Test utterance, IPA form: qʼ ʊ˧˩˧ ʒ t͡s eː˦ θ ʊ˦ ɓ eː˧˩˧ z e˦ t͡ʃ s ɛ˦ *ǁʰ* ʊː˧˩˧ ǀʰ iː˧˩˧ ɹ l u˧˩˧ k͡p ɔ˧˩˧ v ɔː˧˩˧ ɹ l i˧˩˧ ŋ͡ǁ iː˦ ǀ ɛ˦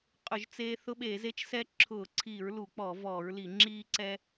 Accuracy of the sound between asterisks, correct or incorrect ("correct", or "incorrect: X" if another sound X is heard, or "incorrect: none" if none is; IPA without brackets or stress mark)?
correct